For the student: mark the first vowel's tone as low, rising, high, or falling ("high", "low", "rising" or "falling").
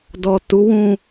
low